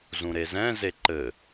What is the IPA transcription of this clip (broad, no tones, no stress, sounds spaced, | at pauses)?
z ũ ɾ e z ɛ̃ z e ǃ ɘ